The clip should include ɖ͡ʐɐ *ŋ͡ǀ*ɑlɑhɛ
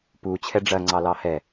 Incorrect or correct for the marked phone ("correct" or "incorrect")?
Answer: correct